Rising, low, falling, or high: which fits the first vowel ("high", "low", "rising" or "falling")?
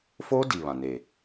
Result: high